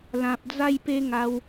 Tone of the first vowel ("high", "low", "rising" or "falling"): low